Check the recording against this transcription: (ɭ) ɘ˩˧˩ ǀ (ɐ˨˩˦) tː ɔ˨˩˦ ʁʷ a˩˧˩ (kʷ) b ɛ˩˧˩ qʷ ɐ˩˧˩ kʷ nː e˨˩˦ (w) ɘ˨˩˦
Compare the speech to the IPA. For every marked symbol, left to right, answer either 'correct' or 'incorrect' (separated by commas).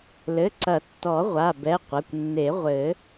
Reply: incorrect, correct, incorrect, incorrect